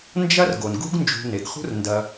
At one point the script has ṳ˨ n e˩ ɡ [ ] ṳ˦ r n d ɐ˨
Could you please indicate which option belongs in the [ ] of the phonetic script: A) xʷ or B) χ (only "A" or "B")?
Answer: B